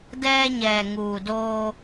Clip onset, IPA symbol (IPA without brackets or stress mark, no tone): d